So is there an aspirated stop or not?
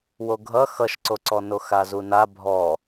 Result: no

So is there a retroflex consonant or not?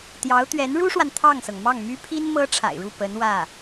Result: yes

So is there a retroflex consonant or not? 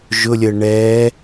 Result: yes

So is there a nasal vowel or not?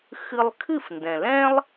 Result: yes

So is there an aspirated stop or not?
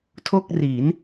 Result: yes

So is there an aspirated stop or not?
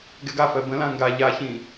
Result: no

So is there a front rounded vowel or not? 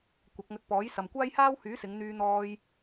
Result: yes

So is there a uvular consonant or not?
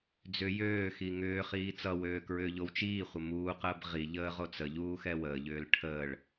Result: yes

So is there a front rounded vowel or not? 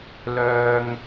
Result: yes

